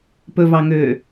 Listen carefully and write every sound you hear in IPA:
p ɵ v ɑ ŋ øː

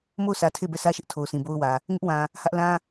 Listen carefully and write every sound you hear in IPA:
m o˦˨ ʊ̯ s ä˨ tʰ e˦˨ b ɛ˦˨ sʰ ä˦ ʃ ɪ˦ ʔ tʰ o˨ ʊ̯ sʰ ĩ˨ b o˦ ʊ̯ w ä˨ | ŋ ɪ˦ ʔ w ã˨ | h ä˦ ʔ l ã˦

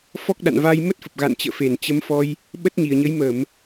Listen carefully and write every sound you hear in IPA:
f ɔ˦˥ k̚ ɗ a̰˧˨ n v a˧ j m ə˦˥ t̚ f ə˨˩ p̚ ɣ a̰˧˨ n t͡ɕ ə̰ː˧˨ f e˧˩ n t͡ɕ ə˨˦ m f ɔ˧ j | ɓ ə˦˥ t̚ ɲ i˨˩ ə̯ ɲ ə˨˦ j m ə˧˩˨ m

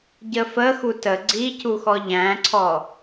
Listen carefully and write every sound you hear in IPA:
ɟ ə f ə x u t ə ɡ͡ǀ i c u x ɔ ʎ æ̃ ǀʰ ɔ

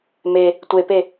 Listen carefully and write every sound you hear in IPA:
m e | tʷ e p e

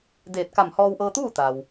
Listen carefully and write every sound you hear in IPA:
d eː˧˩ t̚ k a˧˩ m h ɔː˧ w ʔ ɤː˧ t̪ uː˥˨ t̪ a˩ w

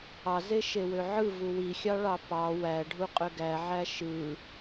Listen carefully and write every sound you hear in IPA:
ɑ z e ʃ e w ø ʕ ɯ v u w i xʲ ɑ ɭ ɑ p ɑ w æ ɖʱ u qʼ ø ɡ æ ʕ æ ʃ ɯ

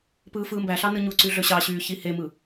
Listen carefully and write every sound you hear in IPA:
p ɯː f ɯː m b æ ɬ ɑ n ɯ ɲ u ǀ y ɮ ø ɕ ɑ ɕ yː ç i h e m ɯ

